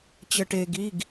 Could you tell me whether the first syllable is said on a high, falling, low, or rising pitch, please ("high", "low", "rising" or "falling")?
low